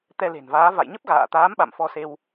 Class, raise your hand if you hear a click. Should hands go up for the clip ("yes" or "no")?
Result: no